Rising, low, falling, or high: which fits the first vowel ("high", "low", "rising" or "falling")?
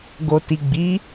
low